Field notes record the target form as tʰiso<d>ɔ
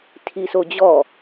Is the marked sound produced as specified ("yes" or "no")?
no